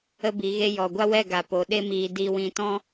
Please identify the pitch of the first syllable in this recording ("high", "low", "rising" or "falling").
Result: high